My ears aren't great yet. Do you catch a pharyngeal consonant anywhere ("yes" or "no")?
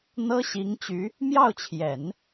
no